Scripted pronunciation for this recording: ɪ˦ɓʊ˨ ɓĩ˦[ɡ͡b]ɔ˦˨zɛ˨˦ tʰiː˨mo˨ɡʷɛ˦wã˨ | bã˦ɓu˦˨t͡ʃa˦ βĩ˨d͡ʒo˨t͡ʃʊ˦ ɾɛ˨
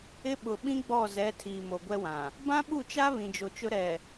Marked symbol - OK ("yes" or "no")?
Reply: yes